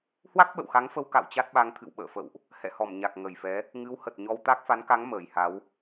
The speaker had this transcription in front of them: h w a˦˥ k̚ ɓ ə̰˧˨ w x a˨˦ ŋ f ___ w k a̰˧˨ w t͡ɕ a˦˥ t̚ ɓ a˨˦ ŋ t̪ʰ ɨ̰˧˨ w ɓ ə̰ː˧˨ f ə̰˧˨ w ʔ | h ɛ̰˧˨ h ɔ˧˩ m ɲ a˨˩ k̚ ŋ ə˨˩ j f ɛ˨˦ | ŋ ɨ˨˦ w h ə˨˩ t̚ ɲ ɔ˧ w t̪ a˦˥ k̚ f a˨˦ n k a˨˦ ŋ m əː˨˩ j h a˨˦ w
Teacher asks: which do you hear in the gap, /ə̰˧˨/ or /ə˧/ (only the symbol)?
ə˧